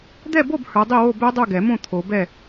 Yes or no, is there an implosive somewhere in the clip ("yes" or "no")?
no